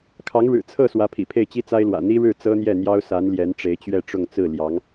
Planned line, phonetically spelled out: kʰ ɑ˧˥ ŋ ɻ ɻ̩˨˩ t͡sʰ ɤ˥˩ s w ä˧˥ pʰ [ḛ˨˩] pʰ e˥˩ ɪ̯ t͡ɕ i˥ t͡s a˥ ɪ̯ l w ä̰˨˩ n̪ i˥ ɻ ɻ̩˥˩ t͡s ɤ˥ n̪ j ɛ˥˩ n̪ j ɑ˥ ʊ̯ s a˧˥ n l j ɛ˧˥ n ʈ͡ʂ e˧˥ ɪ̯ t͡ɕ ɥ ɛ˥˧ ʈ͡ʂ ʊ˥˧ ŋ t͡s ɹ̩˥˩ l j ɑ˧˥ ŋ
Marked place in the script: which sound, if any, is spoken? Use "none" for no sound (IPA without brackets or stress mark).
ḭ˨˩